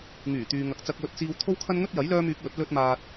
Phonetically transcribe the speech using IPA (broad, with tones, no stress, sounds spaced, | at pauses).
ŋ yː˨˩ t̪ yː˨ ŋ ɐ˨ k̚ t͡s ɐ˧ k̚ w ɵ˥ t̚ t͡s iː˥ w t̪ʰ o˥ w kʰ ɐ˥ n ŋ ɵ˥ t̚ j ɐ˨˥ j l œː˥ m yː˨˥ k̚ w ɵ˨˥ t̚ l ɵ˥ t̚ m aː˧ t̚